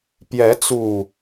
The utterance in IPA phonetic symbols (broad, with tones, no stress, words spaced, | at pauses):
pjɛ˨˦t͡su˨˩